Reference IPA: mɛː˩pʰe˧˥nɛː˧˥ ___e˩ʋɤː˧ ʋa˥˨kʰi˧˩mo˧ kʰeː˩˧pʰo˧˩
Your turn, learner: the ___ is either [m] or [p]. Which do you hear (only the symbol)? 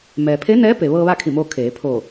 p